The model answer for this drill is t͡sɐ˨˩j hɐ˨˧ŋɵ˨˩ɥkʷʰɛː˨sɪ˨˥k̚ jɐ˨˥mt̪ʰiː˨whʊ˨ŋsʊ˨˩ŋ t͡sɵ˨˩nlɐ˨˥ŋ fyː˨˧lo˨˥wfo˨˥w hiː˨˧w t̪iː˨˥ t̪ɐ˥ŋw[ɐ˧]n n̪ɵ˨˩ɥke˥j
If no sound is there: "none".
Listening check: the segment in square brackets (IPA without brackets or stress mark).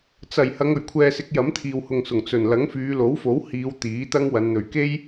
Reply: ɐ˨˧